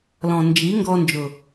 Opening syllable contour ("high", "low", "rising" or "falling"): low